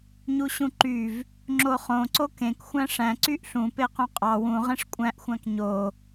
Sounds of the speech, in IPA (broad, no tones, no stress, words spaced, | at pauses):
ɲuɕũǃyv | ŋ͡ǁoχõ ǀokẽk xʷæ̃ʂæ̃ ǀyʔɬũ peqõqʼɑ wũ ʁẽʂkʷʼæ̃ʔ xʷæ̃kɲo